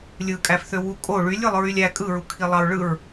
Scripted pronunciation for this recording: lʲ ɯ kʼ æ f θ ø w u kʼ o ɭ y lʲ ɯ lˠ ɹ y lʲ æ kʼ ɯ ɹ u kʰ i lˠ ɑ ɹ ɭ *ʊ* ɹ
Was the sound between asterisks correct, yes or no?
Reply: no